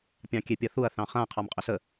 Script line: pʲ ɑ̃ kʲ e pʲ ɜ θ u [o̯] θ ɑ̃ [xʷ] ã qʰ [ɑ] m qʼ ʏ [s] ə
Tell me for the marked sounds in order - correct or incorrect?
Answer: incorrect: ɐ̯, incorrect: χ, correct, correct

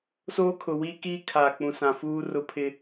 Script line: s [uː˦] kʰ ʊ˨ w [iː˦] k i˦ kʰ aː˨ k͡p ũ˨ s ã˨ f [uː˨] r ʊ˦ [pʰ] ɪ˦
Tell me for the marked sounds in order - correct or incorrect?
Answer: incorrect: oː˦, incorrect: i˦, incorrect: uː˦, correct

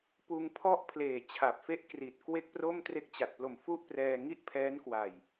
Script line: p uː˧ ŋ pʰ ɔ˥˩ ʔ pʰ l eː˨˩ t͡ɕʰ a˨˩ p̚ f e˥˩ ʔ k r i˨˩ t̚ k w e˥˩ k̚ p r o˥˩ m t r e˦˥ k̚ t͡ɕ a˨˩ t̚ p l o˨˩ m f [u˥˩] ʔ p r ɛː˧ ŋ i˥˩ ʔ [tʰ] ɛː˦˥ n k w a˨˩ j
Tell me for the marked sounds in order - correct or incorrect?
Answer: correct, incorrect: pʰ

